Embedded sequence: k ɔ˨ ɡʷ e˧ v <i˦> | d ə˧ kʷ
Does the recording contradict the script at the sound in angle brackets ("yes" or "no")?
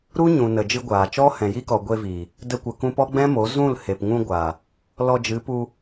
yes